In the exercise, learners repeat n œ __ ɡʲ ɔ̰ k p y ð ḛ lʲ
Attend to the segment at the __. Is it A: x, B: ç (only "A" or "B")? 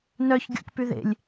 B